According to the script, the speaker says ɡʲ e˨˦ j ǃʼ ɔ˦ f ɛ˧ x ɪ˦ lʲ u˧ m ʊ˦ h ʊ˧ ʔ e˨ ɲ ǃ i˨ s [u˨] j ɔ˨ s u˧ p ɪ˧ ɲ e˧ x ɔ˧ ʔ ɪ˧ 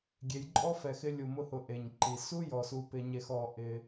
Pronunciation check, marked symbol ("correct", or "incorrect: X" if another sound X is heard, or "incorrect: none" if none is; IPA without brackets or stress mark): incorrect: u˦